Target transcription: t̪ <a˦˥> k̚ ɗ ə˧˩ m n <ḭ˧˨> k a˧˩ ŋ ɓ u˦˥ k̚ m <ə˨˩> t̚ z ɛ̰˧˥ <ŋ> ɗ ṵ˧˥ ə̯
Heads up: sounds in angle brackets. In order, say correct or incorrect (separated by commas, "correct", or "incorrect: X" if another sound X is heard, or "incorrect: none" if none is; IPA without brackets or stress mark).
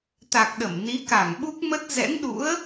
incorrect: a˨˩, incorrect: i˨˦, incorrect: ə˦˥, correct